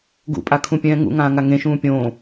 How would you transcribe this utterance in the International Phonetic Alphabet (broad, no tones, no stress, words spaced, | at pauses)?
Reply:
ɡṵpʼakʰũpʲɛ̃ː ŋṵŋãːŋa ŋẽʃũː pʲõː